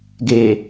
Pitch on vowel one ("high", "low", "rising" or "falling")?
low